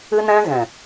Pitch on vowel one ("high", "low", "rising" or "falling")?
high